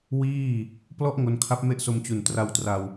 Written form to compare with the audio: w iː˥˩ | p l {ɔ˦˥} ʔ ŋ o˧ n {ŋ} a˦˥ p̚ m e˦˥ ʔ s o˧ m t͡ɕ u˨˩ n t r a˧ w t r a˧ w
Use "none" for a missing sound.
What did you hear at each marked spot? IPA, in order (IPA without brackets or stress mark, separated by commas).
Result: ɔ˦˥, kʰ